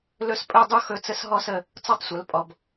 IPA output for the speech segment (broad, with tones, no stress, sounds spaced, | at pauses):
l ɵ˥˧ s pʼ ɵ˥˧ dˤ u˥˧ x ɵ˥˧ t͡s ə˥˧ s ɦ ɔ˥˧ s ə˩˧˩ | t͡s ɔ˥˧ tˤ sʷ ə˩˧˩ l pʼ ɔ˩˧˩ b